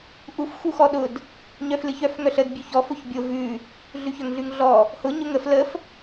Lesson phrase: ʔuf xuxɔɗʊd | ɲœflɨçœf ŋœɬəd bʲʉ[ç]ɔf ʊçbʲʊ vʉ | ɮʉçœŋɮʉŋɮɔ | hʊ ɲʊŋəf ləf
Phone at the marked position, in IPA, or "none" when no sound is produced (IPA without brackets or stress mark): ç